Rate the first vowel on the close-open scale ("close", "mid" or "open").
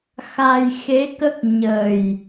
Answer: open